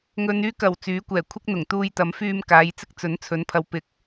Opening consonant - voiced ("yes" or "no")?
yes